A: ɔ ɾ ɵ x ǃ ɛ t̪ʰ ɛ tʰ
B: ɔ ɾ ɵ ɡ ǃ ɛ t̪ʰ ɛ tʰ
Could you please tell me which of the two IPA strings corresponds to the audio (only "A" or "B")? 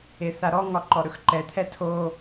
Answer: A